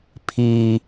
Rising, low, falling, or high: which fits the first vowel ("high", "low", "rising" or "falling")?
high